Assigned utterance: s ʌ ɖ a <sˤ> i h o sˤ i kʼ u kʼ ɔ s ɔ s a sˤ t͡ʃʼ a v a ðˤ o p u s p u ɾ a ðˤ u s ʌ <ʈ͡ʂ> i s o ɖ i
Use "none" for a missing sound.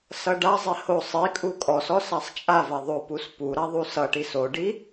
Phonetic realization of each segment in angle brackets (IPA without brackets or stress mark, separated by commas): zˤ, ʈ